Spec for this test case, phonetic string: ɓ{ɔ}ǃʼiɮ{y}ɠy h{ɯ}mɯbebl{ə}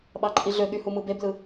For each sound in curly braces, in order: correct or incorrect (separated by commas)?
incorrect, incorrect, incorrect, incorrect